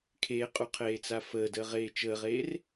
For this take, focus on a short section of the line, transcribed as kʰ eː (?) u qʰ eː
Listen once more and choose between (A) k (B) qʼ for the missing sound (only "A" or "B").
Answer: B